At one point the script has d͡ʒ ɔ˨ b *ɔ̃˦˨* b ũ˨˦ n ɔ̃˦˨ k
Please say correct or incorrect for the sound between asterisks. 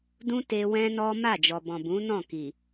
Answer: incorrect